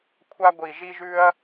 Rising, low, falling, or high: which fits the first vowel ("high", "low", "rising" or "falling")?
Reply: high